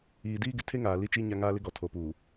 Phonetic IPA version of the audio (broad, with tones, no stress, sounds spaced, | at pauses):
iː˨ d iː˦ ɡ ɪ˨ tʰ e˦ ŋ aː˨ l i˦ t͡ʃ i˦ ɲ a˦ ŋ aː˦ l ɪ˦ ɡ ɔ˨ tʰ o˨ p uː˨